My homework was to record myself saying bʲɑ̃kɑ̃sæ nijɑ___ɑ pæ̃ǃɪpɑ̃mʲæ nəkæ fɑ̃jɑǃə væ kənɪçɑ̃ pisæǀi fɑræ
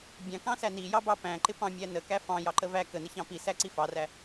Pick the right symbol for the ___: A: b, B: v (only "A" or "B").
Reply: A